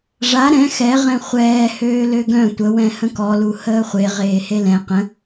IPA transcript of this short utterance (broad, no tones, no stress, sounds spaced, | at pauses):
ʐ a ɾ ɛ̃ x ɛ ʁ ɛ̃ χʷ ɛː h øː l ø ɡ œ̃ tʷ ə w ɛ̃ h ə̃ k ɔ l u h əː χʷ e ʁ eː h e l ɛ̃ q ə̃